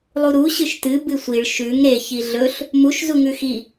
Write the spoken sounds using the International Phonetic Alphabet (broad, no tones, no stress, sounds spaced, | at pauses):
lˠ u ɾ u ɕ ɨ ʃ t ɨ b ɨ sʷ i ɭ ʃ ʉ ŋ ɾ e ç i ɮ ɵ ɬ | m u ʃ z u ŋ ʉ x i